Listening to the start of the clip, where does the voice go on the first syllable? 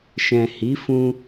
low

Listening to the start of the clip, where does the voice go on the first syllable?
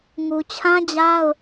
low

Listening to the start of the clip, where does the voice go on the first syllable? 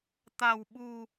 low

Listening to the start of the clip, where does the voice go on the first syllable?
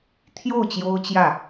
falling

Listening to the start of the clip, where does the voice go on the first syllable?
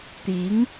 rising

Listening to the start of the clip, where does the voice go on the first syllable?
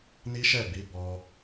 high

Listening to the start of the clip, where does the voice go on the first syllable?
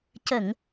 low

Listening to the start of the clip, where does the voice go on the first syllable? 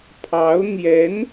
rising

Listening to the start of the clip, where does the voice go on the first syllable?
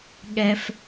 high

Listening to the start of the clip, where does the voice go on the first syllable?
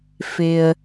low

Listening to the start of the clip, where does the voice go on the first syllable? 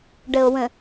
low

